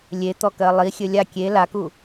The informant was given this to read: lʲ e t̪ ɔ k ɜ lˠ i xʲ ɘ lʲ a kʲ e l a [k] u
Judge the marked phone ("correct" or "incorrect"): correct